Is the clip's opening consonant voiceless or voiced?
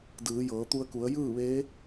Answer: voiced